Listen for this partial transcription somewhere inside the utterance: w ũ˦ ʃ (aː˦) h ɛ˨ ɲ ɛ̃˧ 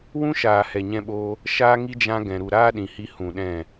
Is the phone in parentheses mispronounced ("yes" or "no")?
yes